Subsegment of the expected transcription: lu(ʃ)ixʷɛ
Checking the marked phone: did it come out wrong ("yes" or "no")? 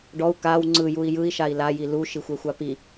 no